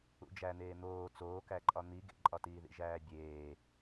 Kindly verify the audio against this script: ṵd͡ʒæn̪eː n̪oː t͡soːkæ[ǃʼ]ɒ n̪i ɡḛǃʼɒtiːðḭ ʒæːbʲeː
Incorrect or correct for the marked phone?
correct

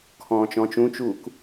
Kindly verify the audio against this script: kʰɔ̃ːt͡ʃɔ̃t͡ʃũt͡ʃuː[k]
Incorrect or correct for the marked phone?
correct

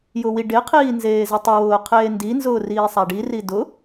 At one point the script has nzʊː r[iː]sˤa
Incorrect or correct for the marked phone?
correct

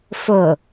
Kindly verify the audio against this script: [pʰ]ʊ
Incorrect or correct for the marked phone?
incorrect: f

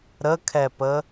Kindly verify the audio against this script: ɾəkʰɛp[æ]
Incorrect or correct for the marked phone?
incorrect: ə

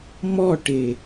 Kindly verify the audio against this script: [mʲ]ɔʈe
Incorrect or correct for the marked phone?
incorrect: m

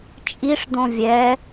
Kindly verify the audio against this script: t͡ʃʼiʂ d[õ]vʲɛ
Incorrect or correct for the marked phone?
correct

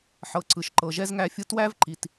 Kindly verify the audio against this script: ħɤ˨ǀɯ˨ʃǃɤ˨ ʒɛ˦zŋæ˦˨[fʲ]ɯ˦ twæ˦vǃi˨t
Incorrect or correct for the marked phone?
correct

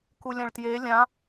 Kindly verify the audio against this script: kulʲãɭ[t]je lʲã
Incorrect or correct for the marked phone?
correct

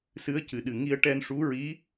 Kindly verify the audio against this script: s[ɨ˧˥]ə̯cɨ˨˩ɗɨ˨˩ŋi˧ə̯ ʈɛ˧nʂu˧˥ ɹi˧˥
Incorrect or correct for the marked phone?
correct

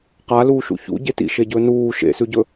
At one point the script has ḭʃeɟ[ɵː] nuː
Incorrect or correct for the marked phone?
correct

